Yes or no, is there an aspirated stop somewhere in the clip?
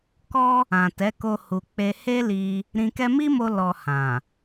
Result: no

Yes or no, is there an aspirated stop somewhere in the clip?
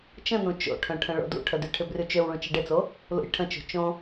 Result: yes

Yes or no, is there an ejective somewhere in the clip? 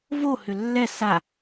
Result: no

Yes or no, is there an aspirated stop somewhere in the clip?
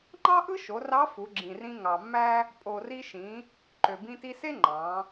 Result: no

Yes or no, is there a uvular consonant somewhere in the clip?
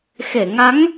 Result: no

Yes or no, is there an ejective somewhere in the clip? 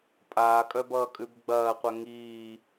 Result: yes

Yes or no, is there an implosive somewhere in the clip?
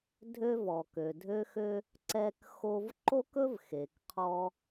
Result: no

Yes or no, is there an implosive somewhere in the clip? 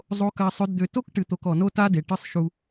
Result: no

